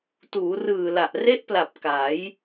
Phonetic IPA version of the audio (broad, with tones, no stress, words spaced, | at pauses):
tuː˩˦rɯː˨˩la˨˩ʔ re˦˥ʔpla˨˩p̚ ka˩˦j